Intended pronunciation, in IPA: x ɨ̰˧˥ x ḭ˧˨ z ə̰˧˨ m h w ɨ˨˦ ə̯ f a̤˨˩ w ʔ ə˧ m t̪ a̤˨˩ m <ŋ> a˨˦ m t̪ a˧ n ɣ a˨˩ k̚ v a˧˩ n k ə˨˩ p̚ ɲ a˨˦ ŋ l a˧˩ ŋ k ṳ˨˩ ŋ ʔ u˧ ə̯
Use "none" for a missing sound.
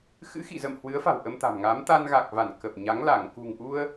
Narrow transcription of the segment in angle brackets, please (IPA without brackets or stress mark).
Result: ŋ